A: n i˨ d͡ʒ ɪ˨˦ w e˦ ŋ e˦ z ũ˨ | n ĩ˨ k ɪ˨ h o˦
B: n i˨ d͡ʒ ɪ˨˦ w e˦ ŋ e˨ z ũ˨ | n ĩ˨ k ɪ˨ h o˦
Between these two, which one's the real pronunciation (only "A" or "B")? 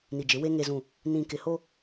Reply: B